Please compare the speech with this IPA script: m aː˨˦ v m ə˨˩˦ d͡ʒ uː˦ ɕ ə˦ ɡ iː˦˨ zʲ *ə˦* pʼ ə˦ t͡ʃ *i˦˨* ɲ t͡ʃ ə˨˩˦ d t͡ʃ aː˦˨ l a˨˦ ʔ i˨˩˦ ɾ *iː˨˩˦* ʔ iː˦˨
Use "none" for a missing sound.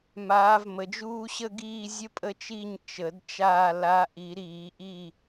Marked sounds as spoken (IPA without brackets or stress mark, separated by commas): ə˦, i˦˨, iː˨˩˦